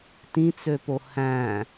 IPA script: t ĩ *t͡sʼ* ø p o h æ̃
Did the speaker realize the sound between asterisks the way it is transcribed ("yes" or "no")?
no